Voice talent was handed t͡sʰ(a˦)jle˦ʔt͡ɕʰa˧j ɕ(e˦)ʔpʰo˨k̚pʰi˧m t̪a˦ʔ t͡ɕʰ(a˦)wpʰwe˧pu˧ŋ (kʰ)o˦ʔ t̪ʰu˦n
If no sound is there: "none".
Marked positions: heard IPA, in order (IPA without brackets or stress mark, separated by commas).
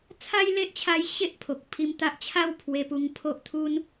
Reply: a˦, e˦, a˥˧, pʰ